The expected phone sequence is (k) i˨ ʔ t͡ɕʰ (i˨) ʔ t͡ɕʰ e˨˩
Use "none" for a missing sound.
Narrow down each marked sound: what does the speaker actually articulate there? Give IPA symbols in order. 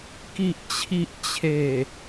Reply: k, i˨

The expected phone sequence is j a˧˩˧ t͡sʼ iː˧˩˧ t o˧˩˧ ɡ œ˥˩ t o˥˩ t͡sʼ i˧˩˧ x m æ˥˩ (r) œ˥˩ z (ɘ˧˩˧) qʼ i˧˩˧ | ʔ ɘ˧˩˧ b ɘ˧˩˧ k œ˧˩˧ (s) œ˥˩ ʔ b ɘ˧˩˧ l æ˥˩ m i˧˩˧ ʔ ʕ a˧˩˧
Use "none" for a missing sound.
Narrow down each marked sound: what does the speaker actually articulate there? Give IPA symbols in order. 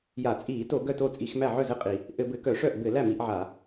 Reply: ʕ, ɘ˥˩, ʂ

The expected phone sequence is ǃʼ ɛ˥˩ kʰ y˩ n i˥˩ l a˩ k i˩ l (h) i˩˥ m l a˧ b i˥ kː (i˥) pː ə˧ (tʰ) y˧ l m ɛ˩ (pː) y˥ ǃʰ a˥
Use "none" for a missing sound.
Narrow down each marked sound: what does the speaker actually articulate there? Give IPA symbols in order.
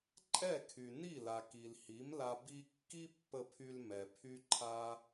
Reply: h, i˥, pʰ, pʰ

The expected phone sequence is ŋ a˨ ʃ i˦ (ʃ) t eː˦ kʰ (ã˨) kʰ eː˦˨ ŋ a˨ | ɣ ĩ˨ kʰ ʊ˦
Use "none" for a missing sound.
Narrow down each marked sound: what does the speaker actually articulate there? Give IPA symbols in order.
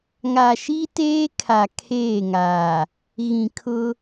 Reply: none, a˨

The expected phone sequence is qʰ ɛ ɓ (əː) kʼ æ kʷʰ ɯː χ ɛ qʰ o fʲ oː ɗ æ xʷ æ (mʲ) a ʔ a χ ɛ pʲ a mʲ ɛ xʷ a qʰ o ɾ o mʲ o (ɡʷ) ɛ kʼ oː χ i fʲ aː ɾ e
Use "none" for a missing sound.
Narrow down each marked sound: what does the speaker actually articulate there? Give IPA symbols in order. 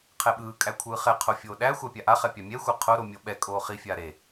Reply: ɯː, pʲ, ɓ

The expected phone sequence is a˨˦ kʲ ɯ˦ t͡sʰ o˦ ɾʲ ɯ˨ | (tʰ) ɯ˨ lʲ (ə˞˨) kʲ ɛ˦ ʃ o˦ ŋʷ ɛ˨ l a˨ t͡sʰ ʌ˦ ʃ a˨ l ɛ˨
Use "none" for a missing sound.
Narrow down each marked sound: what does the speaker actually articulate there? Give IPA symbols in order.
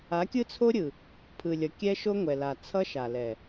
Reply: pʰ, ʌ˨

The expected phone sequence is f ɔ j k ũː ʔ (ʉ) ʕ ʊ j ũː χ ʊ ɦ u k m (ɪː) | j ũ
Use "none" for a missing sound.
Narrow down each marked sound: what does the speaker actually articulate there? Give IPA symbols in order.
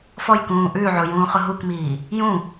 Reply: ʉ, iː

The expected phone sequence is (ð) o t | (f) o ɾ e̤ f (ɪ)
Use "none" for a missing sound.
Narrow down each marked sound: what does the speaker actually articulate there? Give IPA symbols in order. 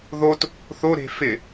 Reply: ð, θ, ɪ

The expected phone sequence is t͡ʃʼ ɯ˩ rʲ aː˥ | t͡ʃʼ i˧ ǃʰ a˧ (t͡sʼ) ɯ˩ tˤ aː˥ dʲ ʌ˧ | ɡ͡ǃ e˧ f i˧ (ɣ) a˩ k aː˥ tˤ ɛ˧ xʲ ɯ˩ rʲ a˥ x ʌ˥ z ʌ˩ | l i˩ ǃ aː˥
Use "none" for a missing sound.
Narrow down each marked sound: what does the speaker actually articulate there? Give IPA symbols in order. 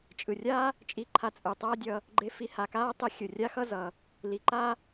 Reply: t͡sʼ, h

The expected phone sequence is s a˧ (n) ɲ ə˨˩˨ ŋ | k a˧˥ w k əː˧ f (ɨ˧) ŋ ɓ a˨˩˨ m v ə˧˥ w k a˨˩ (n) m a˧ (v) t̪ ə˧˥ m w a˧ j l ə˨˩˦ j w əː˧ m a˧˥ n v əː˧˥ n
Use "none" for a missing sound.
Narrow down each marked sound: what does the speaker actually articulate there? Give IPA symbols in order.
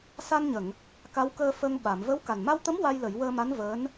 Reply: n, ə˧, n, w

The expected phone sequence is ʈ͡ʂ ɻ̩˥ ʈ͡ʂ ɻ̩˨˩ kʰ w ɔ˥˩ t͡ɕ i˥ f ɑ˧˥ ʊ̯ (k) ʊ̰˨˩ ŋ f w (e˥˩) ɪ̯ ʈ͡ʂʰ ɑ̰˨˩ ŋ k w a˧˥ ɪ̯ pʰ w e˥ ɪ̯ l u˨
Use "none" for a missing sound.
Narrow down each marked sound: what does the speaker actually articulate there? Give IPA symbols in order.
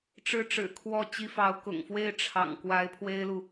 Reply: k, e˥˩

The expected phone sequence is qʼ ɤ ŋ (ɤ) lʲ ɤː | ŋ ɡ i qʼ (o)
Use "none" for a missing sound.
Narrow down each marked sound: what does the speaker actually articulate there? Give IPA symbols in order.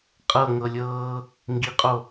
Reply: ɤ, o

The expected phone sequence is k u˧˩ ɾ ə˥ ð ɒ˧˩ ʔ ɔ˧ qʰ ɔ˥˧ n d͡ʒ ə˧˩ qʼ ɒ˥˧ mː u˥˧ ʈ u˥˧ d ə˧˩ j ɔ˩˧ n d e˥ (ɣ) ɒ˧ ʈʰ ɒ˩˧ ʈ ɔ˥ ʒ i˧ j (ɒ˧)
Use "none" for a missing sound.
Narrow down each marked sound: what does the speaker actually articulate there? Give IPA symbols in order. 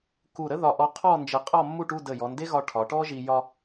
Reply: ɣ, ɒ˧

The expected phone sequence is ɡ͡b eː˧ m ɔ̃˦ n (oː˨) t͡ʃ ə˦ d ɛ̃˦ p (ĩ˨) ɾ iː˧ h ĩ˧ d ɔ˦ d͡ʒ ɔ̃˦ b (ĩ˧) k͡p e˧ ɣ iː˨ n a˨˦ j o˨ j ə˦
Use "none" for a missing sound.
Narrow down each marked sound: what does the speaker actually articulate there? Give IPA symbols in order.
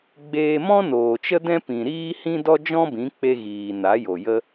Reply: oː˨, ĩ˨, ĩ˨˦

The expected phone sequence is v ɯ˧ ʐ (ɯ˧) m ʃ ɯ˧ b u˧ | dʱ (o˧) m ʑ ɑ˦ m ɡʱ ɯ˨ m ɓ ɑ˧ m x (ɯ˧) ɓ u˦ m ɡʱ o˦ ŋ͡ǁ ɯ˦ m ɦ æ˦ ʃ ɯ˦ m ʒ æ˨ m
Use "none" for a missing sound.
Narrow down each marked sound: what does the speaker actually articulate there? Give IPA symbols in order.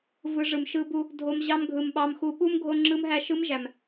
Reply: ɯ˨, o˧, u˧

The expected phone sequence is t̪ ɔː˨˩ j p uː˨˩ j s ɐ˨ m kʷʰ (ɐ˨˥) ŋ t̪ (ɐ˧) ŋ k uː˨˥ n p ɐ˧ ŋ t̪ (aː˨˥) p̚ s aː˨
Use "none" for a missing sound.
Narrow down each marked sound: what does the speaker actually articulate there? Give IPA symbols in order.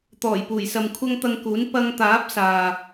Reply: ɐ˧, ɐ˧, aː˨˥

